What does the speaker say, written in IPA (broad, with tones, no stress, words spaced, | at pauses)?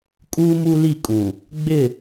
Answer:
kʼuː˦mu˦li˦˨ kʼũ˨ | ɡ͡bɪ˦˨